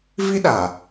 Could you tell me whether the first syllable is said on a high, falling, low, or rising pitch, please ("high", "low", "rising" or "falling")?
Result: high